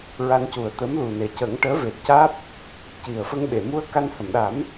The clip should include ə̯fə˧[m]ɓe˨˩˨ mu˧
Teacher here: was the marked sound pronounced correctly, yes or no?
no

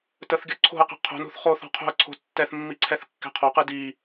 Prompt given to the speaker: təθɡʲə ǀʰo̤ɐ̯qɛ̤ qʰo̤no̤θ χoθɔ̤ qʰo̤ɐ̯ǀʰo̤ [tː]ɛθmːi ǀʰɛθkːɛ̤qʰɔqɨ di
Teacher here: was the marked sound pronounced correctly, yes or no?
yes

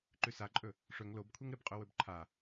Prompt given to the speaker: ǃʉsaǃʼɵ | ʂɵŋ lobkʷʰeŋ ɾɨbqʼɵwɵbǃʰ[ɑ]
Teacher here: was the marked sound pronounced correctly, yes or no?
no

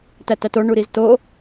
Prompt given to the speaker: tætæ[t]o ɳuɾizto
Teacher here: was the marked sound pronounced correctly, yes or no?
yes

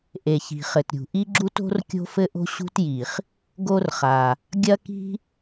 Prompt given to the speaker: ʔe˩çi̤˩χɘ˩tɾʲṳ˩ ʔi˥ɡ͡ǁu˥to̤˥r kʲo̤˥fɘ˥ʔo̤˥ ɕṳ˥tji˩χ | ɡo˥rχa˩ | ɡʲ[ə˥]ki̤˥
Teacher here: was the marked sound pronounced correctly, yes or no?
no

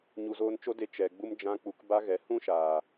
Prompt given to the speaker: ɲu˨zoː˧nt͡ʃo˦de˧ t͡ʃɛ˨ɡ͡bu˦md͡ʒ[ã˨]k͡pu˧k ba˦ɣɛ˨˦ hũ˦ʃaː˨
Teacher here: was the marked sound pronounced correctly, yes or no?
no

